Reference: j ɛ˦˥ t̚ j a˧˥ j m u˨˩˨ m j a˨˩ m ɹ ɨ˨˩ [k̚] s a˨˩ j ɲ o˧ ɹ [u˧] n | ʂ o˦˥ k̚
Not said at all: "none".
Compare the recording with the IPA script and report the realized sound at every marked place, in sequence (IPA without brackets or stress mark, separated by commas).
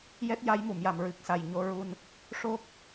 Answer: k̚, u˧